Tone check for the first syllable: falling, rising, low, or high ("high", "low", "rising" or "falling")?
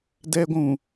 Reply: high